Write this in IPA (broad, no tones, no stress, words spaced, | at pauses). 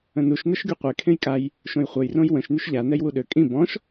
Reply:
ə̃nuʃ nəʃɡyqʷe kʰẽjkʼaj | ʃõjχʷœj rõjwə̃ʃ nyʃʎa nɛjwuɗø kʼĩ bɔ̃ʃ